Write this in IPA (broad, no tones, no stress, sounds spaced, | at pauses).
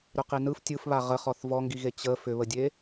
ɾ ʏ q i n ɯ f tʲ ɯ f β a ʁ ə χ ɔ θ v ɔ ŋ ɡ i ɣ e t͡ɕ ə f ʏ β ə dʲ e